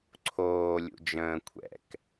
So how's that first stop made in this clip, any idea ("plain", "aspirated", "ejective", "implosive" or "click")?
click